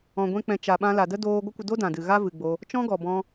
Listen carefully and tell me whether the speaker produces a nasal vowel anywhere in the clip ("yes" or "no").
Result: yes